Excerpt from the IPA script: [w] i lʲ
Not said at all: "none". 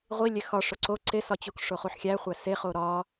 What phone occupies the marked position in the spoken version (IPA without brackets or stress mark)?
ʁʷ